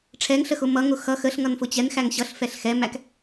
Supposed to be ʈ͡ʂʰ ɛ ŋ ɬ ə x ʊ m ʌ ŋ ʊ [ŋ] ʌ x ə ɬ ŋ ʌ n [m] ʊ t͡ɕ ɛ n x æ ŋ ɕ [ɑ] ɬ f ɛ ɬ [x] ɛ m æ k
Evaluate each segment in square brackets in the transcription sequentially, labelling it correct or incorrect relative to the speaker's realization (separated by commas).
incorrect, incorrect, incorrect, correct